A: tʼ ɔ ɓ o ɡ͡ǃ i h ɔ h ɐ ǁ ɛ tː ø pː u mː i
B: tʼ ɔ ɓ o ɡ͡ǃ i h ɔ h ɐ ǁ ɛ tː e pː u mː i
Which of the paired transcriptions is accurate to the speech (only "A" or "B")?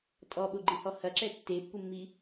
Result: B